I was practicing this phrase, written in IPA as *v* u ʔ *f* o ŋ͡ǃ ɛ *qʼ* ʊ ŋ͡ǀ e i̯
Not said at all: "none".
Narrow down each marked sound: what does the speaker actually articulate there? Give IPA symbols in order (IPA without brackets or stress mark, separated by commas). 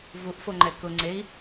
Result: v, f, k